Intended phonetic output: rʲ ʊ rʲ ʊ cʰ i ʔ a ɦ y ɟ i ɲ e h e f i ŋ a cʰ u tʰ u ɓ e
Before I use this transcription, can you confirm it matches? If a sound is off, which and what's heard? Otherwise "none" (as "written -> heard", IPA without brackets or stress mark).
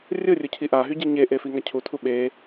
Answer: h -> ʔ